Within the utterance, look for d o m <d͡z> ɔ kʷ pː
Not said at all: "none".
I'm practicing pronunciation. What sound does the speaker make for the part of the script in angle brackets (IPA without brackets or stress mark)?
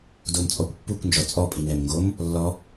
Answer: t͡sʼ